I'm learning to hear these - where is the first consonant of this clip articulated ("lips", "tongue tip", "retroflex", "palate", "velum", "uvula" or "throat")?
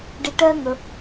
retroflex